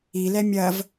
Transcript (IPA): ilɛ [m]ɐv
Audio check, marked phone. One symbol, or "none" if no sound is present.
mʲ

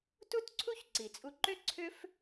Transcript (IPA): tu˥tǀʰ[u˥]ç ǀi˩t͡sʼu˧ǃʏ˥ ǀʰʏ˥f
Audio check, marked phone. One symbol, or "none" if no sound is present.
u˥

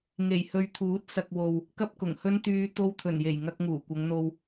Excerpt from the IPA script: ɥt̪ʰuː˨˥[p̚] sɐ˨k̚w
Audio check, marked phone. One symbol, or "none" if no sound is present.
t̚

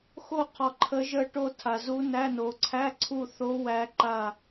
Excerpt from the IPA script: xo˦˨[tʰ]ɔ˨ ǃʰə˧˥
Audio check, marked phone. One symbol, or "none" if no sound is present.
qʰ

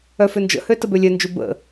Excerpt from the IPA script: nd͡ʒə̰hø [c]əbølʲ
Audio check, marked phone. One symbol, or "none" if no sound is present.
t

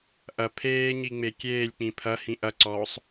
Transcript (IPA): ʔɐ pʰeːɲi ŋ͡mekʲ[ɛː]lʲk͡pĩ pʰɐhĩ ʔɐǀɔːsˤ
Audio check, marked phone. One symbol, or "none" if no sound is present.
eː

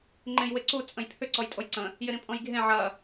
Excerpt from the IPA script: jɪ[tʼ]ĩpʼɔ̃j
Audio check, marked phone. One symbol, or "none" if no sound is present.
ɾ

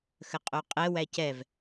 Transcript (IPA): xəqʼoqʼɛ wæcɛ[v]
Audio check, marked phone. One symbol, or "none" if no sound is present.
v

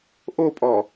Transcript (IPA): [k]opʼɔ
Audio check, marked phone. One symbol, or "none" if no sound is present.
ʔ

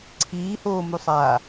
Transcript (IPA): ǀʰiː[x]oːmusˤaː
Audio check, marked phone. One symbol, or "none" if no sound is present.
h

